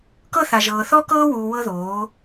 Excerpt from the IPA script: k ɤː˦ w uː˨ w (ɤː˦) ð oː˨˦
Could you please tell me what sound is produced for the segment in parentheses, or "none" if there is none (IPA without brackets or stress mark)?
ɤ˦